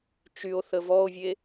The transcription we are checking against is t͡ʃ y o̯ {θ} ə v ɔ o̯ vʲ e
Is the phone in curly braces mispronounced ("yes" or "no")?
no